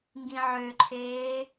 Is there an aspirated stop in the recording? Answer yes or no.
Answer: yes